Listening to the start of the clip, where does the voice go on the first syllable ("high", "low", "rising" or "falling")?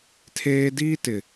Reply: high